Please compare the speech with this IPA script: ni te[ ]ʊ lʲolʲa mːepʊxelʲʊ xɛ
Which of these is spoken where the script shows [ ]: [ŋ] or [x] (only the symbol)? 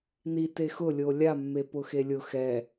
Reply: x